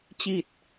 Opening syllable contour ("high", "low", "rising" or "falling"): low